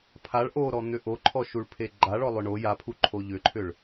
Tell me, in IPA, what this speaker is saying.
pʰ a ɭ ʔ o ɾ ɔ n̪ ʏ ʔ o ǃʰ ɔ ʃ u ɭ pʰ e ɡ͡ǃ a ɭ ɔ lˠ ʏ ɳ o j a pʰ u ǃʰ o ʎ ʏ ǃʰ ʏ ɭ

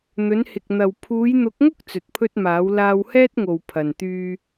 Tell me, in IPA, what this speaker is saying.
n̪ ɵ˨˧ n h ɪ˨ k̚ n̪ ɐ˨ w pʰ uː˨˧ j n̪ ʊ˨˥ k̚ ŋ ʊ˥ k̚ t͡s ɵ˨ t̚ pʰ ɵ˥ t̚ m aː˨˥ w l aː˧ w h ɛː˥ t̚ ŋ o˨ w pʰ ɐ˨ n t̪ yː˧

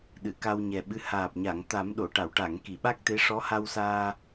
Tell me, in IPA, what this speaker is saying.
ɗ ɨ˨˩˨ k a˧ w ɲ ɛ˨˩ ɓ ɨ˧˥ h aː˨˩ p̚ ɲ a˨˩˨ ŋ t̪ a˨˩˦ m ɗ o˨˩˨ ʈ a˨˩˨ w ʈ a˨˩˨ ŋ k i˨˩˨ ɓ a˦˥ k̚ t̪ e˧˥ ʂ ɔ˧˥ h a˧ w s aː˧

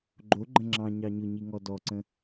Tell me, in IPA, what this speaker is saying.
ɡ͡ǃ o ɡ͡ǃ ə̃ ŋ͡ǁ ɑ̃ ɲ ɑ ɲ ʊ ɲ i ŋ ɔ d ɔ ǀ ə̃

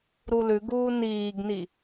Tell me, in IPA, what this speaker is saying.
ɾ u l ʉ ɡ uː n iː ɡ n i

